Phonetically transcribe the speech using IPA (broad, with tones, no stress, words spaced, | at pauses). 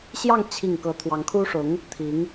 ɕjɑ˥˧ŋ t͡ɕʰi˥˩ŋ kɤ˧˥t̪ʰwɑ˧˥ŋkʰu˥ʂʊ˧˥ŋ | t̪ʰi˧˥ŋ